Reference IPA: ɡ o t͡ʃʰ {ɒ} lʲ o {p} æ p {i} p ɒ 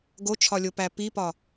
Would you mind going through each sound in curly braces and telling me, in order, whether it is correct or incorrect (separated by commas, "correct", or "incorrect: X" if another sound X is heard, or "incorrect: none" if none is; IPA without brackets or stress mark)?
correct, correct, correct